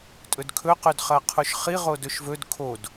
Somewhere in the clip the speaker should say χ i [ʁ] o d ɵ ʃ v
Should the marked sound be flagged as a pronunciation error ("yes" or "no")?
no